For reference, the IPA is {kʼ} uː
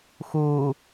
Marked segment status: incorrect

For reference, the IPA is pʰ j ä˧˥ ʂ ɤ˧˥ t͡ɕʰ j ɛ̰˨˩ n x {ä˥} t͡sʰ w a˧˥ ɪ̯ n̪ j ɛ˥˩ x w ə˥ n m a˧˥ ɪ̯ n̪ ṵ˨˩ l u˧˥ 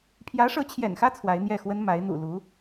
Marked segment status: correct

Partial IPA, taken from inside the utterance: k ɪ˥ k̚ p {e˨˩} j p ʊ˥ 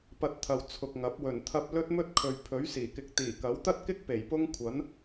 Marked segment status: correct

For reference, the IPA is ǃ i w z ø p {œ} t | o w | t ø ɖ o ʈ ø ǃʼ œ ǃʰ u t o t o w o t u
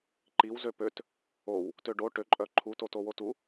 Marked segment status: incorrect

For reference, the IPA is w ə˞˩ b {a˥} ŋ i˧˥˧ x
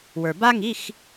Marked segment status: correct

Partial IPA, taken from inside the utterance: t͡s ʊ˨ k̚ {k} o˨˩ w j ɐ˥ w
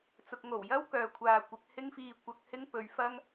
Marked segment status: incorrect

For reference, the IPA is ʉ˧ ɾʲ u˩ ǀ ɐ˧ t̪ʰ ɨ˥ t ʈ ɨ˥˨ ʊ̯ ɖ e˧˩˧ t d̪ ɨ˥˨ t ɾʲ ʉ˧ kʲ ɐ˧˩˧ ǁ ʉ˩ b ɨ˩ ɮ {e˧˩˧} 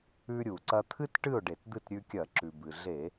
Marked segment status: correct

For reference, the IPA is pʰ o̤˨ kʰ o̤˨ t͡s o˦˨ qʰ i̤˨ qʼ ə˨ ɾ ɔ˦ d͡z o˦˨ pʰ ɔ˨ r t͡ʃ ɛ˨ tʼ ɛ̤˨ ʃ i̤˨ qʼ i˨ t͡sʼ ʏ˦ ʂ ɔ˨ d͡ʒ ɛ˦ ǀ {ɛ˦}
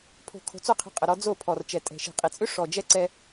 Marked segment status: correct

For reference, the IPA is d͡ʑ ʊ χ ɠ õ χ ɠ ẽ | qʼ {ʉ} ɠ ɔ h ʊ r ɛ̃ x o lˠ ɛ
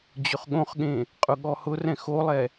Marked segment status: incorrect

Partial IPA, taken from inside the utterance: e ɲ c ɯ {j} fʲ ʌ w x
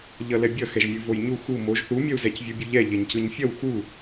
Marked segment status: incorrect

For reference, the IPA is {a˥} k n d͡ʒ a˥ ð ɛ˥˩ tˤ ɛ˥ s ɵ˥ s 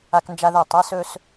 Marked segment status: correct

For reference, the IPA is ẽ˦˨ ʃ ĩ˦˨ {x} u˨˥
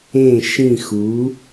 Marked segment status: correct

